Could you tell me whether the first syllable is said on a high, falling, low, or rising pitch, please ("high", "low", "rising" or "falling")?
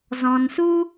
low